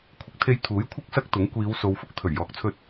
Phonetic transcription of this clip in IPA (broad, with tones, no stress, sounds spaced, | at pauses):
kʷʰ ɪ˧ k̚ t̪ʰ e˧ j t̪ʰ uː˨˥ j kʷʰ ɪ˥ k̚ s ɐ˥ k̚ t̪ ʊ˨˥ ŋ kʷ iː˨˧ w s o˨˧ w f ʊ˥ k̚ t̪ʰ ɵ˨˩ ɥ j ɔː˨ k̚ t͡sʰ ɵ˧ t̚